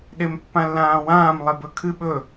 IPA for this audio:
ɗ e m pː ã lː ãː w ãː m lˠ e b ɵ kʰ ɨ ɓ ɵ

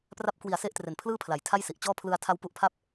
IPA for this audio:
p r a˦˥ p̚ k w i˨˩ a̯ s e˥˩ ʔ t r e˨˩ n pʰ l ɯː˥˩ pʰ l a˩˦ j tʰ a˥˩ j s i˨˩ ʔ t͡ɕ ɔː˥˩ pʰ l ɯ˧ a̯ tʰ a˦˥ w p u˦˥ ʔ pʰ a˥˩ p̚

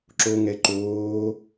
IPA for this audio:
ǁ o ŋ ɛ ǃ oː

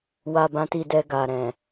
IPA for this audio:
w a˧ b ã˧ t i˧ d ɛ˧ ɡ a˨ ɾ ɛ̃˨

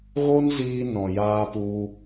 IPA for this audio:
ɣ o˦ n z iː˧ n ɔ̃˨ j aː˧ p u˧

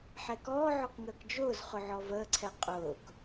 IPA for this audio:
ħ ɛ k ɔː ʕ ɔ k ŋ əː k d͡ʒ ʊː z χ ʊ ʕ ɔ v əː ǀʰ ɛ qʼ ʊː k

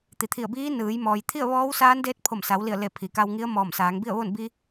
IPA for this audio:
t̪ i˩ t̪ʰ i˧˩ ə̯ b iː˧˥ n ɯː˩˧ j m ɔː˩ j t̪ʰ i˥˨ ə̯ ʋ ɔː˧˥ w s aː˧˥ n d eː˧˥ t̚ pʰ o˧˩ m s a˩˧ w l i˧˩ ə̯ l e˧˩ pʰ i˩ k a˧ w ŋ i˧˥ ə̯ m ɔː˧˩ m s aː˩˧ ŋ b i˥˨ ə̯ ʋ o˥˨ n b i˧

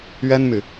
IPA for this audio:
ɥ ɛ˥ n m y˨

